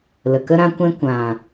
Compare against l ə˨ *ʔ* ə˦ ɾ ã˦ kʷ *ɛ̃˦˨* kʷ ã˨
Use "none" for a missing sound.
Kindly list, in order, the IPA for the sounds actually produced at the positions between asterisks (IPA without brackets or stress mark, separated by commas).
k, ɛ̃˦